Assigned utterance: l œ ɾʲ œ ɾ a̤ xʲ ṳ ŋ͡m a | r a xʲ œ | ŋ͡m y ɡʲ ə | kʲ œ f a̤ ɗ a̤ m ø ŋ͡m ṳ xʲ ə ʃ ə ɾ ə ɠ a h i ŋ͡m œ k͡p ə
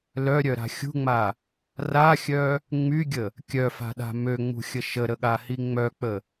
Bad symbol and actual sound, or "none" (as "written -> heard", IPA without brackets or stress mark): none